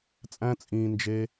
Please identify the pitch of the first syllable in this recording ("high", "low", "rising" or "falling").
high